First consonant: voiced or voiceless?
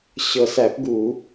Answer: voiceless